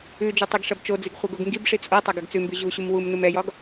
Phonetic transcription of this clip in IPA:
ʉ d͡ʒ o tˤ ɛ ɡ ʂ ɐ b t͡ʃ o d͡z i ɡ χʷ ɛ ɡ o ɡ ŋ ɡ i b ʂ i t͡sʼ o tˤ ɐ ɡ ɐ ɡ t͡s ʉ m b ʉ ʑ u ɕ u m w u m n u m ɛ j ɒ ɡ

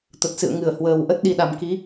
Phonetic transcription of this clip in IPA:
t̪ ə˨˩ t̚ s ɨ̰˧˨ ə̯ ŋ ɨ˧˩ ə̯ h w əː˨˩ w ʔ ə˦˥ t̚ ɗ i˧ ɗ a˨˩ m k i˨˦

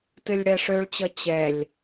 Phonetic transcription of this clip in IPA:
t ɨ lʲ ɽ ɛ ʂ ø ɭ t͡ɕ ʌ t͡ɕ ɛ lʲ

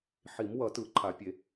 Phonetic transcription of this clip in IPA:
ħ i˨˩˦ m w ʌ˨˩˦ t ɯ˨˩˦ ǃʰ a˨˩˦ pʲ e˨˩˦

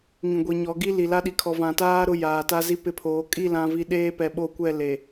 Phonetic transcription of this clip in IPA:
ŋ ĩ˨ ɡʷ i˨ ɲ ɔ˨˦ ɡ i˦ l i˨ l a˦ ɗ i˨ kʰ ɔ˨ v ã˨ t aː˦ ɾ ʊ˦ j aː˨ t a˦ z i˦ p ɪ˦ pʰ oː˨˦ kʼ i˦˨ l ã˨ v i˨ ɗ eː˦ p ɛ˨ ɓ o˦˨ kʷ ɛ˦˨ l e˨

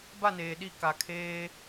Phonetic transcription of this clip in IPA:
b a˦˨ n eː˨ ɗ i˦˨ k a˨ kʰ eː˦

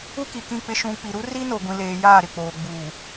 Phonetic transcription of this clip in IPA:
u˦ k i˨ k ĩ˦˨ k͡p ɪ˦ ʃ ũ˨ k͡p i˨ ɾ u˦ r i˦ n o˨ ɡʷ ĩ˨ l eː˨ j aː˦˨ ɾ ɪ˦˨ k͡p oː˨ ɡ͡b uː˨

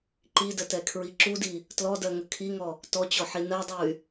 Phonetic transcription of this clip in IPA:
ǃ i d ə t ɛ kʰ ɹ i ǁ u d i | t l ɔ d ɜ ŋ ə kʰ i ŋ ɔ | t ɔ t͡ɕ ɔ ħ i n ɜ dˤ u y̯

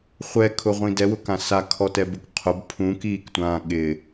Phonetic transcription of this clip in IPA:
χʷ ɛ kʰ ʊ ʁʷ ĩ d ɛ w ʊ k ã s a kʰ ɔ t ɛ b u k qʰ ʊ b pʰ ũ k iː k tʷ ãː ɠ ɪ

